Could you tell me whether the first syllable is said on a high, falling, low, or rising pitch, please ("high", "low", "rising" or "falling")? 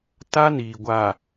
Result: high